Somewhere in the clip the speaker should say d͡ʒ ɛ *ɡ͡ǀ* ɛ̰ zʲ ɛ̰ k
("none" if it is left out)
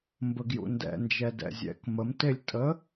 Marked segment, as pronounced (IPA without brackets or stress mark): d